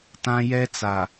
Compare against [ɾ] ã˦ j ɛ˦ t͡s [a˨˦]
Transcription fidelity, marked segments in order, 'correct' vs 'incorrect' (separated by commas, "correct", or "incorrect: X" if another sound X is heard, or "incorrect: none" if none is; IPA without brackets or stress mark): incorrect: t, incorrect: a˨